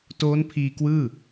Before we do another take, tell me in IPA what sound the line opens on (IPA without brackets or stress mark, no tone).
t